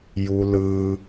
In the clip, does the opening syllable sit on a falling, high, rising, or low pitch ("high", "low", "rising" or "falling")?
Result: low